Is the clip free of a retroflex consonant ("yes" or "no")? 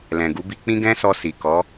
yes